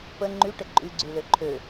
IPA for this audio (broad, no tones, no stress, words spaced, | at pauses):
pə ŋ͡ǃyʈə ǃʼyɡ͡ǀylø ǃʰø